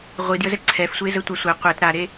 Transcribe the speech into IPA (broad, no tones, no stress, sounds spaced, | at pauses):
ʁʷ i d j ə z ɛ ǀʰ ɛ f sʷ e z ə tʷ a sʷ ɛ qʷ ɛ t ɾ a ɾ e